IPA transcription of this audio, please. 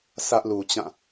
sʰ ä˦ ʔ l u˨ t͡ɕ ã˦˨

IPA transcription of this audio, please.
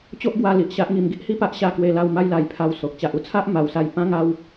t͡ɕ o˦ ʔ ɡ w a˧ l i˨ ʔ ɕ a˦ ʔ ŋ i˧ m ɡ i˦ ʔ h i˦ p a˦ ʔ ɕ a˥˧ k w e˧ l a˥˧ w m a˦ j l a˧ j pʰ a˧ w s o˨ k̚ t͡ɕ a˨ ʔ u˦ t͡sʰ a˦ ʔ m a˧ w s a˥˧ j p ã˦ ŋ a˦ w

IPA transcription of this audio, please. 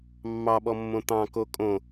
mː ɑ ɓ ɔ mː õ t̪ ɑ̃ k o kʼ õ

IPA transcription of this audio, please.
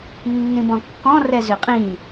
nː ĩ b ɔ̃ kː ɔ̃ r ɛ z ʏ qʼ ĩ

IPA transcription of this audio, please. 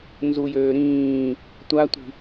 n z u j øː ɾ ĩː | tʷ a tʷ i̤

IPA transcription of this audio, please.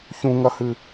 ç ũ ŋ ɐ h ɨ

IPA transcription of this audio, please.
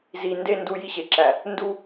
z i˨ n d e˦ n d u˦˨ j i˦ ɕ e˨ ǁ æ˨ | n d u˦

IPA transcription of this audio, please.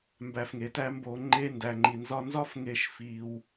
m b æ˧ f ŋ e˨˦ t æ˦ m b o˧ ŋ͡ǃ e˦ n d æ˧ ŋ͡ǃ i˧ n z ɒ˦ n z ɒ˦ f ŋ e˧ ʃ f i˧ w

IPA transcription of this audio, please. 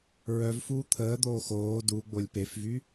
ɹ œ v f uː t̪ʰ əː d̪ oː x oː d u ɡ͡b o lʲ p e f v y

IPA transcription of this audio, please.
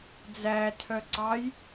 d͡z æ tʰ œ ǀ ɑ j

